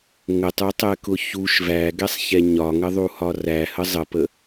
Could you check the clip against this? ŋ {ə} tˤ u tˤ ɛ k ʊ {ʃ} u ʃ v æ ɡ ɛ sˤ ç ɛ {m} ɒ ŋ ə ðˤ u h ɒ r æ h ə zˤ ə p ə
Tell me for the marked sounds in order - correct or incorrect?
correct, incorrect: ç, incorrect: ɲ

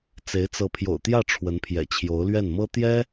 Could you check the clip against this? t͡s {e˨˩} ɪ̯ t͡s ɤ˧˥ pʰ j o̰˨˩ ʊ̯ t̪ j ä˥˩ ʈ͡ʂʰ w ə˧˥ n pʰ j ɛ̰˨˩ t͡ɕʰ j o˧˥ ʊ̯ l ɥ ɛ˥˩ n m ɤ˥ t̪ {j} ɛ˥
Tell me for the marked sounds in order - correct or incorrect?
incorrect: e˧˥, correct

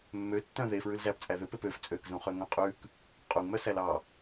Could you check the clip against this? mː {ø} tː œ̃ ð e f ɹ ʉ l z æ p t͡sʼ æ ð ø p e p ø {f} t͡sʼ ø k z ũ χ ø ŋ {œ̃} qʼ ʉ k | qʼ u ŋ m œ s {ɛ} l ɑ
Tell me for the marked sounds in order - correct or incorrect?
correct, correct, correct, incorrect: æ

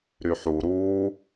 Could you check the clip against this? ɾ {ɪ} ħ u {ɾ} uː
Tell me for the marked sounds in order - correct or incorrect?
incorrect: y, correct

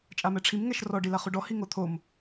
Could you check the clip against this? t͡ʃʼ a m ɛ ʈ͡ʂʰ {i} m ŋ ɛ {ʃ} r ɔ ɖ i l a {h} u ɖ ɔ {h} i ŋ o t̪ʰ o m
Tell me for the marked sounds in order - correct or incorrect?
correct, correct, incorrect: χ, correct

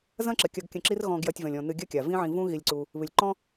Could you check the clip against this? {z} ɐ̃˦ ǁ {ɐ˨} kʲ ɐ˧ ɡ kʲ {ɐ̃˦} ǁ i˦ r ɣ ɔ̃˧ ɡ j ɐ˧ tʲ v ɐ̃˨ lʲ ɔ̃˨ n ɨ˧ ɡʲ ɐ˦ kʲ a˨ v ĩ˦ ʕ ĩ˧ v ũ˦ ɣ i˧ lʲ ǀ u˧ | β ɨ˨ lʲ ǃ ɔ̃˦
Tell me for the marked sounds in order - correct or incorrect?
correct, correct, incorrect: ɐ̃˧

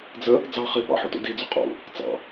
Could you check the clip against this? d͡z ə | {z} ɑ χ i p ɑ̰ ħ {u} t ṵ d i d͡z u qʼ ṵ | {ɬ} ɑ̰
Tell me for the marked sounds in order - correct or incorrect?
incorrect: d͡z, incorrect: ṵ, incorrect: t͡s

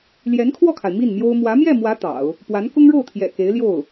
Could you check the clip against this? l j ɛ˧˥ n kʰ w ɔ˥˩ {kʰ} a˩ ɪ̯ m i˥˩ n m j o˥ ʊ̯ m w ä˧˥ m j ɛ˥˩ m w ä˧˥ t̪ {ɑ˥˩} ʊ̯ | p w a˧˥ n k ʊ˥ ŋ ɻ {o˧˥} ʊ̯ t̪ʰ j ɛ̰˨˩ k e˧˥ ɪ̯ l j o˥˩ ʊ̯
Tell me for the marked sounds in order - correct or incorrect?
correct, incorrect: ɑ̰˨˩˦, incorrect: o˥˩

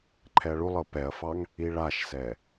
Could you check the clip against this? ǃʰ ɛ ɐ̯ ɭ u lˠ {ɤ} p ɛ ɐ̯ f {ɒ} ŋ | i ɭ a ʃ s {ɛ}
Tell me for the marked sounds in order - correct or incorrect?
correct, incorrect: ɑ, correct

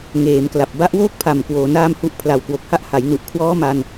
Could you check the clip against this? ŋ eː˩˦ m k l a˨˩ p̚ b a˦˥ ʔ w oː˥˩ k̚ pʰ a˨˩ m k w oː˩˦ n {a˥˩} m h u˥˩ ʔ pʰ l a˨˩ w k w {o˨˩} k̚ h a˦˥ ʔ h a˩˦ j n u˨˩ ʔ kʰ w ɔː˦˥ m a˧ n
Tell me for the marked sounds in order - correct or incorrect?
incorrect: aː˥˩, correct

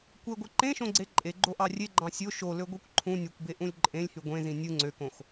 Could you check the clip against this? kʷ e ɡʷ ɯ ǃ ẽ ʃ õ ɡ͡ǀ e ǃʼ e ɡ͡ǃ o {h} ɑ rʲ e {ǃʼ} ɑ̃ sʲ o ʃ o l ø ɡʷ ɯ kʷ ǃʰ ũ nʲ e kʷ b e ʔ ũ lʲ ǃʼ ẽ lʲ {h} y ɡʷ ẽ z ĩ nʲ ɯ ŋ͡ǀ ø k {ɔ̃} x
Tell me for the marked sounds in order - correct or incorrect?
incorrect: ʔ, incorrect: ɡ͡ǃ, correct, incorrect: õ

